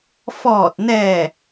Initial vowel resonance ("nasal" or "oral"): oral